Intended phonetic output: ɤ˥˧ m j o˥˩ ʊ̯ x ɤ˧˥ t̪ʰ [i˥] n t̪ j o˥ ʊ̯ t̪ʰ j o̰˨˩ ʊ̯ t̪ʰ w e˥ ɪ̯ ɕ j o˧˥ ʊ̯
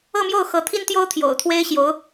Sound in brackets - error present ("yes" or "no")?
no